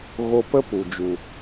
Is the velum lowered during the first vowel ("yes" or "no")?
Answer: no